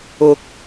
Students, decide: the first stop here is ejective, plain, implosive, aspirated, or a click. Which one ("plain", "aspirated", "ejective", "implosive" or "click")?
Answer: plain